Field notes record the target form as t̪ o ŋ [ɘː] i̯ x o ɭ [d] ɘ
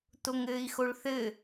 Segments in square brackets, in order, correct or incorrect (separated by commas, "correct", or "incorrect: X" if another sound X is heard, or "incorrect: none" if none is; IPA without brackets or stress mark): correct, incorrect: θ